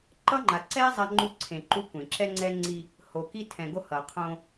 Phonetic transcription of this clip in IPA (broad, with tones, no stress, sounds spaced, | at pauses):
ǃ ʌ˦ ŋ͡ǃ a˨ ǀ ɛ˦ zˤ a˦ ŋ͡ǃ u˦ ǀʰ ẽ˨ ǃ u˦ kʷ ẽ˨ ǁ ɛ˦ ŋ͡ǀ ɛ˦ ŋ͡ǀ i˦ | h o˨ k i˦ tʰ ɛ̃˨ ɡ o˦ h ʌ˨ qʰ õ˦